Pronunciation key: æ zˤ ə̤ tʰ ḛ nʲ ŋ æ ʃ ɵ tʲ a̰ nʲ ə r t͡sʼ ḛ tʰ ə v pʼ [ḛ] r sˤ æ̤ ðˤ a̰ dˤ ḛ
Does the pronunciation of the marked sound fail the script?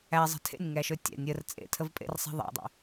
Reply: no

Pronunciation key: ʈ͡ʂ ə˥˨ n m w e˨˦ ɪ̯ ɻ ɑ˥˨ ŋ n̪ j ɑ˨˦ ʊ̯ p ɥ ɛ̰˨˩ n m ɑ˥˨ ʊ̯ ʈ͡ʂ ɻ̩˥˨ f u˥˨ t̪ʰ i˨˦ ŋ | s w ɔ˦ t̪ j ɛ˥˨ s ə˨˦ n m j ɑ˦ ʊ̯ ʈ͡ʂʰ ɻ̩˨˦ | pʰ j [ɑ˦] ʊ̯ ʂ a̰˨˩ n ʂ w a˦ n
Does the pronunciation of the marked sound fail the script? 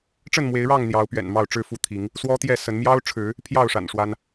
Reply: yes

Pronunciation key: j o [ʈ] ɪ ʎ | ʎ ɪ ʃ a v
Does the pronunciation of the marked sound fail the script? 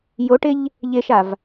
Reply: no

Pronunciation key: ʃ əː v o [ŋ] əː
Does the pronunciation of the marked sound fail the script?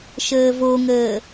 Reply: no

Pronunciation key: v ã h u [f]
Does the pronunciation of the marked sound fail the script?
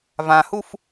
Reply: no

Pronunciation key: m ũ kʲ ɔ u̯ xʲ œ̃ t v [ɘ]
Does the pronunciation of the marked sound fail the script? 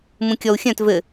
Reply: no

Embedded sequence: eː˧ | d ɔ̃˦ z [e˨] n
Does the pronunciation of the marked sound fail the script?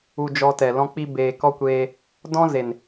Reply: no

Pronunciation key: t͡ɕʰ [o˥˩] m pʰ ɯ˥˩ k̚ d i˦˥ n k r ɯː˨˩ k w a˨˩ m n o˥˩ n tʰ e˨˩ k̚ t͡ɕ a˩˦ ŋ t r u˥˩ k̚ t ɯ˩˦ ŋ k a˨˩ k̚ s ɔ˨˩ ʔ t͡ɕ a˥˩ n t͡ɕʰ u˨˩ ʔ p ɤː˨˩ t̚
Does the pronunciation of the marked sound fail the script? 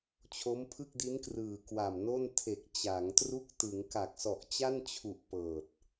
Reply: yes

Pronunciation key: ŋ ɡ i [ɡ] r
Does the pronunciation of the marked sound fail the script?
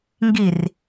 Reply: yes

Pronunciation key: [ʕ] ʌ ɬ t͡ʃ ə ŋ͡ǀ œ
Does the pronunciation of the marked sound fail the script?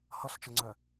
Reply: yes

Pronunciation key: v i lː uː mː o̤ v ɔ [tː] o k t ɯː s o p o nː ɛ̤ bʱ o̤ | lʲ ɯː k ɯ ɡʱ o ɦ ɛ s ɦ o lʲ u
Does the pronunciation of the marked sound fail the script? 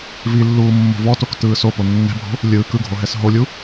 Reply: yes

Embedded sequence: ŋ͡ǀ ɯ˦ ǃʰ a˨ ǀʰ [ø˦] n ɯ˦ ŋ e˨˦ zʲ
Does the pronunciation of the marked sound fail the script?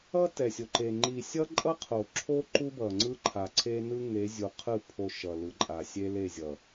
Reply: yes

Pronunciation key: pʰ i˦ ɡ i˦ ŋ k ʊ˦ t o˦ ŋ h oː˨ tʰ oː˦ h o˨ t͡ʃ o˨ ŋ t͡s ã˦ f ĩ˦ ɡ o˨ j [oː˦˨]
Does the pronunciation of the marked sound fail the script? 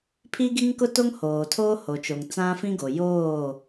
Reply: no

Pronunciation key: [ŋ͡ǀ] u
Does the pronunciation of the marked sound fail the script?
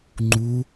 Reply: yes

